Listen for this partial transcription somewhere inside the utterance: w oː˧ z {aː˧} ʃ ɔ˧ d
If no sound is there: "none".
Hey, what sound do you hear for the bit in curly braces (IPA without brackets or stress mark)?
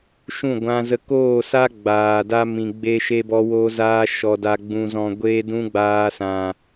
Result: aː˦